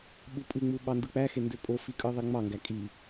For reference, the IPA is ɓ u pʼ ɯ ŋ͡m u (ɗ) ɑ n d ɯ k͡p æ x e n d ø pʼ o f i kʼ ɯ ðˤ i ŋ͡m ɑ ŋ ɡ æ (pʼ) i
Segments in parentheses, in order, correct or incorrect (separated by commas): incorrect, incorrect